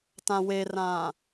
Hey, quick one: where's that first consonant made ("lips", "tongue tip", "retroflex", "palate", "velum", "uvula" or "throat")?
tongue tip